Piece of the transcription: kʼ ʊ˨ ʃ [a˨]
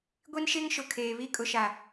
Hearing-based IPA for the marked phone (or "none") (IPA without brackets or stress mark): a˨